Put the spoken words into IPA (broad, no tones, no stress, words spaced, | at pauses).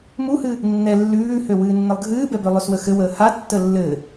muhɨ | nːɛ lːʉːhøwɨːnːɘlˠ ɡʱɨːbɛbø lˠøswəxɘwəː hatːə lːɘ